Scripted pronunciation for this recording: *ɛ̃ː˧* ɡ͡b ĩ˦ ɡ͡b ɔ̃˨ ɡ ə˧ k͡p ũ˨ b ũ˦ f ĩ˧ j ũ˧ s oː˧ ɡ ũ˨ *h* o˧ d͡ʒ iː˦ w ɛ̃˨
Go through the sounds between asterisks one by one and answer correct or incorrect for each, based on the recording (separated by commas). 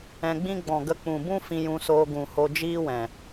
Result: incorrect, correct